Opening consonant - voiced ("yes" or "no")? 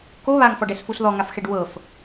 no